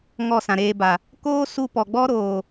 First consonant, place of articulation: velar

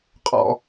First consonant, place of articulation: uvular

